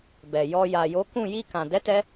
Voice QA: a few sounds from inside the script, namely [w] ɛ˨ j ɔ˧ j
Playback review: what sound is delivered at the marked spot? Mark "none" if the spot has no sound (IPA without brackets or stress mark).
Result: b